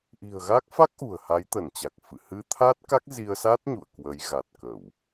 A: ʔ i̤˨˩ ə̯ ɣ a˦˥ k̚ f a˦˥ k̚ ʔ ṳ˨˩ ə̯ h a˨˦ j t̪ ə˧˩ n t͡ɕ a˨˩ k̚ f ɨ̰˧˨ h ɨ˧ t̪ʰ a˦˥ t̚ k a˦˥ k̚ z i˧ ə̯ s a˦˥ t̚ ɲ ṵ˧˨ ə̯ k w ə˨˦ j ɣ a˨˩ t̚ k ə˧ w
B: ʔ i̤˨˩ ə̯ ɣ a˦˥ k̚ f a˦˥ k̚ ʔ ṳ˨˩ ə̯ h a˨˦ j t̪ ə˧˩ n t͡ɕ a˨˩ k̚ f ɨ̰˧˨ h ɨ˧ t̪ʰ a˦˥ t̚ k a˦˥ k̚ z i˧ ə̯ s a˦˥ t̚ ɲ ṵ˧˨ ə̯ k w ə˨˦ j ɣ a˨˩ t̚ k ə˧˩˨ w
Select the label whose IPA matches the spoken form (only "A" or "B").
B